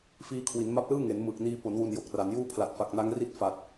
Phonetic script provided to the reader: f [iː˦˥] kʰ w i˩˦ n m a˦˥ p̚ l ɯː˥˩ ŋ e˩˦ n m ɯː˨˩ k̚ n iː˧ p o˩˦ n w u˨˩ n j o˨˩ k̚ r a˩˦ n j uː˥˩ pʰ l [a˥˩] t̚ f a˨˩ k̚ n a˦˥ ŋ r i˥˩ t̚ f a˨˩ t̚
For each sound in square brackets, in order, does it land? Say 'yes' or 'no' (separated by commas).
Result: yes, no